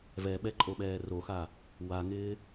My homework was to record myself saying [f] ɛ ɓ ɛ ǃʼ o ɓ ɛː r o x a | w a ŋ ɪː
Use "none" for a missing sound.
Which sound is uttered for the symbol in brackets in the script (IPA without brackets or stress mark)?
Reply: v